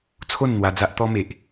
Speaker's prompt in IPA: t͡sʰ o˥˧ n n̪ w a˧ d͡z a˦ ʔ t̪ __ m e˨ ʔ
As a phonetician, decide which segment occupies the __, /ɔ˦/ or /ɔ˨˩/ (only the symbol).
ɔ˦